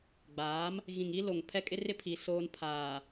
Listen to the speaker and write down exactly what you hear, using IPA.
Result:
ɡ͡b aː˨˦ m | ɣ ĩ˨ ŋ i˦ l o˨ ŋ pʰ ɛ˦ kʼ ɪ˦ r ɪ˦ pʰ i˨ s oː˦ n pʰ aː˨

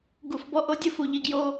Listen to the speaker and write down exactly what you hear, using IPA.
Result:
ɡ u˨ f b ɔ˧ ʔ o˧ dʲ ʊ˦ f u˨ ʎ i˧ ɡ j o˦

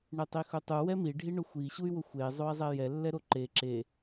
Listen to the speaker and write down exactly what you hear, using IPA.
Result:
ɳ e tˤ i x ʊ tˤ u w ɛ m i ɖʱ i ɳ ʊ xʷ i ɕ u y̯ w ʊ xʷ e zˤ o i̯ zˤ ɛ j ɛ lː ɛ ɾ o ǃ e ǁ e

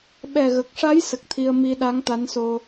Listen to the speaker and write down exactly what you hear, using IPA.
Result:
ɓ ɛ˨˩ ɣ ə˨˩ k̚ ʂ a˧˥ j s ə˨˩ k̚ t̪ʰ i˧ ə̯ m i˧ ɗ a˧˥ ŋ t̪ a˧˥ n s o˧

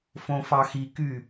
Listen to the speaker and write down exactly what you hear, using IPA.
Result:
f õ f ɑ x i k y

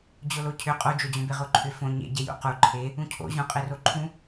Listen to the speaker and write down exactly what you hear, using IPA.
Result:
d͡ʑ o l o cʰ ʏ qʼ o d͡ʒ o d͡ʑ õ b e ʁ o ǃʰ ʏ f õ ɲ ḛ ɟ e j ṵ q u ǃʰ e | ũ cʰ o̰ ʑ ũ qʼ e r o ǃʰ ũ

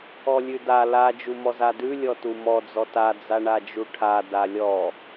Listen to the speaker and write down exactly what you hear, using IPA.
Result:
ɔ lʲ ʉ d a l a d͡ʒ u m ɔ z a d ʉ lʲ ɔ t u m ɔ d͡z ɔ t a d͡z a ɳ a d͡ʒ u ʈʰ a d a lʲ ɔ

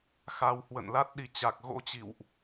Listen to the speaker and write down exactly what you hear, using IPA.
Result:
x a˧ w h w ə̰˧˨ n l a˦˥ t̚ ɗ i˨˦ t͡ɕ a˨˩ k̚ ɣ o̰˧˥ t͡ɕ ḭ˧˨ w ʔ

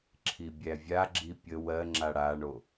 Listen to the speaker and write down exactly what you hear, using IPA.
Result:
ǁʰ i bʲ æ vʲ a ɡ͡ǁ i pʲ ə w ɜ ŋ͡ǁ a ɽ a ɳ o

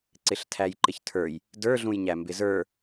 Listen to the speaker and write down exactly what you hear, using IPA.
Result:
ǀ ɪ ɬ tʰ æ j ǃ ɪ ç tʰ ə˞ j | d ə˞ ɮ ũ j ɲ æ m b ɪ z ə˞

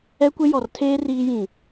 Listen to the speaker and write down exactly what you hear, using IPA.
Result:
ɛ˦ kʷ e˦ j ɔ˨ r tʰ eː˦ r iː˦ j ĩ˨

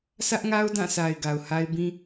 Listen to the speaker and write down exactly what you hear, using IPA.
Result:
sʰ ä˦ ʔ ŋ a˦ ʊ̯ d ã˦˨ s a˨ ɪ̯ ɡ a˨ ʊ̯ h a˦ ɪ̯ b ĩ˦

